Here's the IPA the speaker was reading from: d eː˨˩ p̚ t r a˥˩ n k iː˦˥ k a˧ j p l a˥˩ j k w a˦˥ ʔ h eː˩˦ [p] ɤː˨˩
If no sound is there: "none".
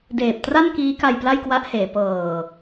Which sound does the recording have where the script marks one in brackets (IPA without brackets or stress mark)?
p